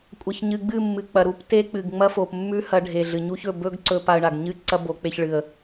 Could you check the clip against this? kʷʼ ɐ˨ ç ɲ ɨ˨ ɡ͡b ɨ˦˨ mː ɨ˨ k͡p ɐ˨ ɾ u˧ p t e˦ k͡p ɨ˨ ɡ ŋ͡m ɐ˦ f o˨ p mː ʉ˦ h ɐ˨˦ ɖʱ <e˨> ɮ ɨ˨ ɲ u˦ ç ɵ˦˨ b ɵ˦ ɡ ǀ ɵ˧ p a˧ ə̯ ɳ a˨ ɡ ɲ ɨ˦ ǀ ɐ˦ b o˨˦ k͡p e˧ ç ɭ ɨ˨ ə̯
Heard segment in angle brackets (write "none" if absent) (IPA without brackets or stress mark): e˨